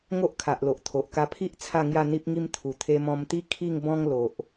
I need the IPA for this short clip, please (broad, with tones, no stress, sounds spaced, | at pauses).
ŋ o˦ ʔ kʰ a˨ ʔ l o˨ ʔ t̪ʰ o˨ ʔ k a˧ pʰ i˦ ʔ t͡sʰ a˥˧ ŋ j a˥˧ n̪ i˦ p̚ ŋ i˦ m t̪ʰ u˨˩ t̪ʰ e˧ m ɔ̃˧ m t̪ i˦ kʰ i˥˧ ŋ b ɔ̃˦ ŋ l o˨ ʔ